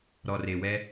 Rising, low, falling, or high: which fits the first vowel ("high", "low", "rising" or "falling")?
low